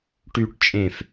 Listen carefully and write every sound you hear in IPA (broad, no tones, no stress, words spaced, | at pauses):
ʈyʈ t͡ʃʼẽf